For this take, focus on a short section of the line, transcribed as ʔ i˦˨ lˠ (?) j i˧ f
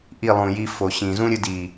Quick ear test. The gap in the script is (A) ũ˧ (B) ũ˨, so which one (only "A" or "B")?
B